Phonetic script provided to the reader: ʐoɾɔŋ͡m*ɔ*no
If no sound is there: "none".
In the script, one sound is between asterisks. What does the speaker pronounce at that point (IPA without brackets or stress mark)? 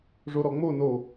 o